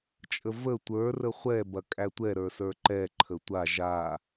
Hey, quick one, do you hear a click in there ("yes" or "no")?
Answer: yes